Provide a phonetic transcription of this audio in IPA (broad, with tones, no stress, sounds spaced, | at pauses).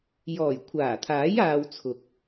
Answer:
j ɔː˨˩ j kʷʰ aː˨˩ t̪ʰ aː˨˥ j aː˧ w t͡sʰ ʊ˨ k̚